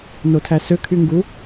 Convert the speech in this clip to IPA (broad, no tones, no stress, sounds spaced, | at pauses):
n o tʰ æ s ø kʰ y ŋ ɡ u